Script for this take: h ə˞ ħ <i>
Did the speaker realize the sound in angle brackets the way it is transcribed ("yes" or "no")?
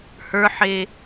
no